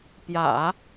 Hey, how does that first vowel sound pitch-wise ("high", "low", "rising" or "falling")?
low